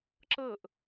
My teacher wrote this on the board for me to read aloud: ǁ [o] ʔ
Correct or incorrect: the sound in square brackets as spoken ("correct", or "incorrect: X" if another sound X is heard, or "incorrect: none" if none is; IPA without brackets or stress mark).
incorrect: ɤ